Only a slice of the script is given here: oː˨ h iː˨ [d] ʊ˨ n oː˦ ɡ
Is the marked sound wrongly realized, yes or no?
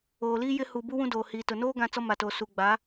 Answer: yes